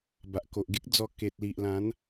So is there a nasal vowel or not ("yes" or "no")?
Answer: yes